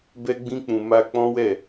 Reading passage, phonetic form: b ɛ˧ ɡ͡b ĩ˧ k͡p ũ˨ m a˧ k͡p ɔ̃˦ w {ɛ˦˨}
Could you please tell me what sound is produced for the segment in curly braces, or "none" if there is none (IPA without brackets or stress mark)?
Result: ɛ˦˨